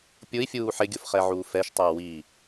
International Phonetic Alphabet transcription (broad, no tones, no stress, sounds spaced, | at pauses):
pʲ ʊ i̯ fʲ uː ħ ɪ ɡʲ ʊ f χ ɛ ʕ uː f ɛ ʃ tˤ a w i